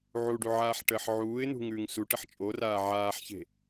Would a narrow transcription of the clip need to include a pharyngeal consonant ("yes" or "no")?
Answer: yes